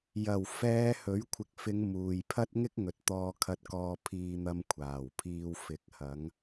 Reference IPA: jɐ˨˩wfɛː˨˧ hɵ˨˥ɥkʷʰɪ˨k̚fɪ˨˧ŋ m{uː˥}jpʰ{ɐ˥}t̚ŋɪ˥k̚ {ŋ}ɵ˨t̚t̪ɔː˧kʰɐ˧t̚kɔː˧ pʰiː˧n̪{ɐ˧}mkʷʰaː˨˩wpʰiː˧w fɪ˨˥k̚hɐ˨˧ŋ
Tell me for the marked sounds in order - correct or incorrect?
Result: incorrect, correct, correct, correct

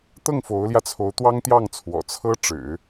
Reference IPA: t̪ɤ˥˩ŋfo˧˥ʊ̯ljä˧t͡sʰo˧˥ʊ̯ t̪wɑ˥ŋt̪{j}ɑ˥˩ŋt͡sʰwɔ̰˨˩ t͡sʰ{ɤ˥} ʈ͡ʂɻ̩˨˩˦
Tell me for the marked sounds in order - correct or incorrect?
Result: correct, correct

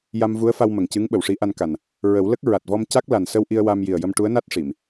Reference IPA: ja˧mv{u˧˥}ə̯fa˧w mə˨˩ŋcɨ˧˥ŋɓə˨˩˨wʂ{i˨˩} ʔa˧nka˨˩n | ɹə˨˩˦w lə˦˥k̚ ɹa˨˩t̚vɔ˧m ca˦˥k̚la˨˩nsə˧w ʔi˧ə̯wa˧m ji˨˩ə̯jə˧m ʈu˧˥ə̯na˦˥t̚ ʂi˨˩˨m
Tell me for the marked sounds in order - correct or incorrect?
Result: correct, incorrect

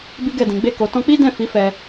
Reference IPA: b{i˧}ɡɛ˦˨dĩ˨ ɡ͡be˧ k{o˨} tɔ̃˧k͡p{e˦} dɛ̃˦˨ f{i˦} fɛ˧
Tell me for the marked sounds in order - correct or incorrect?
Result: incorrect, correct, incorrect, incorrect

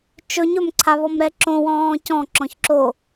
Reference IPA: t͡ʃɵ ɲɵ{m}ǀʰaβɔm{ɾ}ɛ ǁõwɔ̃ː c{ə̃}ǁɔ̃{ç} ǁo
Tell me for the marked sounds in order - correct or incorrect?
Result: correct, correct, incorrect, correct

